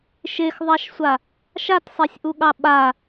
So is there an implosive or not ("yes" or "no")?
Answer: yes